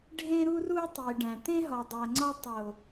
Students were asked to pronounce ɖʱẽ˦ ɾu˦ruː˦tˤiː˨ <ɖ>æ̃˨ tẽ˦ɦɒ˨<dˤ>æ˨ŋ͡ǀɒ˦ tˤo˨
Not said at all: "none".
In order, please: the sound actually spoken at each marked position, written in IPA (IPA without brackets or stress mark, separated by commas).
ɖ, dˤ